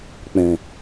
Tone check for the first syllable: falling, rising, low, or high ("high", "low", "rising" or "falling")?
low